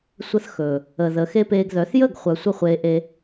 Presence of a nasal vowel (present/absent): absent